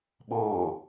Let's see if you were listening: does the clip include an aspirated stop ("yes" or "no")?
no